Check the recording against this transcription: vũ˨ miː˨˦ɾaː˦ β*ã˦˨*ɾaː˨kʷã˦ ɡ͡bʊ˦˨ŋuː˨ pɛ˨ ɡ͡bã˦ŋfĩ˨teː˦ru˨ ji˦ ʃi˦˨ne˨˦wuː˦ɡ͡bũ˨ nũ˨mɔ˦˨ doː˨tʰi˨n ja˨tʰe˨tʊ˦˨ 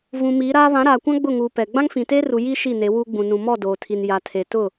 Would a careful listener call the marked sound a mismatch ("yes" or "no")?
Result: yes